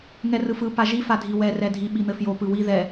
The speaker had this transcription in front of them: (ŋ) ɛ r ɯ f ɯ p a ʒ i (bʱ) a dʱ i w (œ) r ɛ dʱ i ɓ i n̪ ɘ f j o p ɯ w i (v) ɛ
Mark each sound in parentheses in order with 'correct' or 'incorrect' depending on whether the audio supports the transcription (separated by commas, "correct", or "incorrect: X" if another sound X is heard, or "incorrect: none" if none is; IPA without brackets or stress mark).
correct, incorrect: f, incorrect: ɛ, incorrect: ð